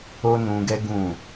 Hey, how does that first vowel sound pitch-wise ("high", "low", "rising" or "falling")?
high